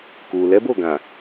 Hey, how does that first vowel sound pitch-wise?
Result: low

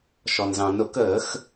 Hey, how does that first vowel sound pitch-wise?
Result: low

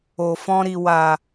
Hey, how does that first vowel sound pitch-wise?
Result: low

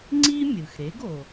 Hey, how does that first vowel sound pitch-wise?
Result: high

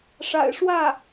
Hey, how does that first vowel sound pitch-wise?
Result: low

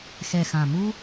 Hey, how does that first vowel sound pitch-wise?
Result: low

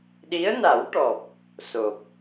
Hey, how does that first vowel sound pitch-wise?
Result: rising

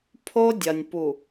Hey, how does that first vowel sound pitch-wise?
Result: high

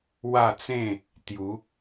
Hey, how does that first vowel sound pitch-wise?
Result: falling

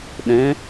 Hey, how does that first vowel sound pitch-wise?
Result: rising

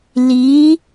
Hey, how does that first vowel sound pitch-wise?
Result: rising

